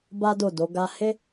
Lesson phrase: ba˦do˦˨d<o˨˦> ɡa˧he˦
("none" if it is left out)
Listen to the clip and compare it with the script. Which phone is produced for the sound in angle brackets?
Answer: o˨˦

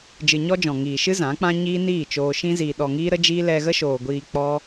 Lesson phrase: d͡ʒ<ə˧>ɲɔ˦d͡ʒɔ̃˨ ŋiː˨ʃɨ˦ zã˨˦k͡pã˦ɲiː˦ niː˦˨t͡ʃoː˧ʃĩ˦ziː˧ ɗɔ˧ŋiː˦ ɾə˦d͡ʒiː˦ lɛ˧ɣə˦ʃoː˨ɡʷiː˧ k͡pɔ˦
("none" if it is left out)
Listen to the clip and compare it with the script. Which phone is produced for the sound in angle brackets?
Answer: ɨ˧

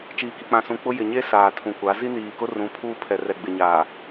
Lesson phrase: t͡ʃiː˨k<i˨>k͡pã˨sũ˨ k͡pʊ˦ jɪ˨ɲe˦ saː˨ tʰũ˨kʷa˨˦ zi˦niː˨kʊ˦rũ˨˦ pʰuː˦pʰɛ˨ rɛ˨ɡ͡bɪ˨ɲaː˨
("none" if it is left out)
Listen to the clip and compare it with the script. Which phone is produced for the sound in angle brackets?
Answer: i˨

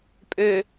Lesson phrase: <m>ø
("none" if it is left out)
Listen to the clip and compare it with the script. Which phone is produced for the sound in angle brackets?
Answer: pʼ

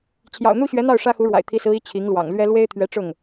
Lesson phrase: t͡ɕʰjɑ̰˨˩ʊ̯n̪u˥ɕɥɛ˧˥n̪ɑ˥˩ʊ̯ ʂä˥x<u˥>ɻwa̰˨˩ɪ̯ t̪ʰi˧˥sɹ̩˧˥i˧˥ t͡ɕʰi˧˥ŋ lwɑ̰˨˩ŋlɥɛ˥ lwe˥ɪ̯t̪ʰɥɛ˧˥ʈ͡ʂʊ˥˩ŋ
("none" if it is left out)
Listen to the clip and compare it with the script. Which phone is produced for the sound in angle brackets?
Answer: u˧˥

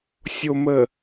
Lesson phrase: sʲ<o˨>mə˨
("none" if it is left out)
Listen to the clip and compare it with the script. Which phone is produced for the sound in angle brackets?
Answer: o˨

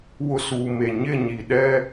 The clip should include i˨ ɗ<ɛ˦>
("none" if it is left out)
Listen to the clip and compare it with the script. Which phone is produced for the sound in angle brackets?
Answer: ɛ˦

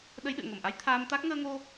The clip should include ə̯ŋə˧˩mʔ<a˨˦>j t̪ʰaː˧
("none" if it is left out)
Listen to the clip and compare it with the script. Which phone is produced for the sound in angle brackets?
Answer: a˨˦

